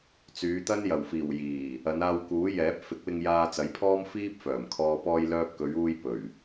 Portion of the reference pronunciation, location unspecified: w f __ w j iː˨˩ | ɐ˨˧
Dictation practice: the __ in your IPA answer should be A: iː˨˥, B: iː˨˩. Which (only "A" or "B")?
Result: B